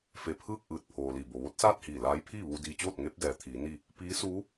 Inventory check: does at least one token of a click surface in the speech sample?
no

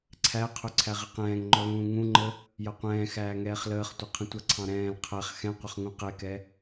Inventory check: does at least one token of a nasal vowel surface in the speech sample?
yes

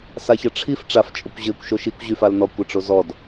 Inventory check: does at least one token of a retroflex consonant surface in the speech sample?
yes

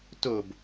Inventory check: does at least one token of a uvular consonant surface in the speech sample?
no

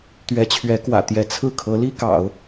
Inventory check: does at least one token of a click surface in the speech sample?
no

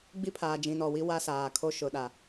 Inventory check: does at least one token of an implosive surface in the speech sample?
yes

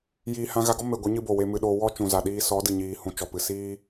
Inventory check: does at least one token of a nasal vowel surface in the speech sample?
yes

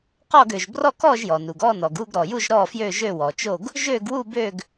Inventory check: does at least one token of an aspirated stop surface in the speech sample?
no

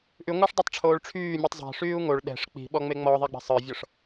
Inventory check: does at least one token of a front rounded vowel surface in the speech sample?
yes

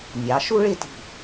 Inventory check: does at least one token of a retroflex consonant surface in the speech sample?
yes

